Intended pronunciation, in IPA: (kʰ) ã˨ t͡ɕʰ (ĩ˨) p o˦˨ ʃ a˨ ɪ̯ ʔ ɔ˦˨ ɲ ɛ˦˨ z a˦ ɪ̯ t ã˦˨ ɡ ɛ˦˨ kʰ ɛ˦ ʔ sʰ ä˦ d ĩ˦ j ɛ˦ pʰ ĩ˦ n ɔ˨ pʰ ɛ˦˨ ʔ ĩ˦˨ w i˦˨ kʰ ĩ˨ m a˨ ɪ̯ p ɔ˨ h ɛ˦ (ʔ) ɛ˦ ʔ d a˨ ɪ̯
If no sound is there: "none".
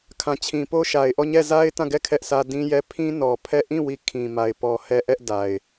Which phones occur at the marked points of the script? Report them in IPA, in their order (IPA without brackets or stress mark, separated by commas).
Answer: kʰ, ĩ˨, ʔ